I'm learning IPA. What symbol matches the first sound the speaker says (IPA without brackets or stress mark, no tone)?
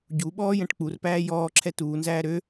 ɟ